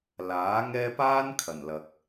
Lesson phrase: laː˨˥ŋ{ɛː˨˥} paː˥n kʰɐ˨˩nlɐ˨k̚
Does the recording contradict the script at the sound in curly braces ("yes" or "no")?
yes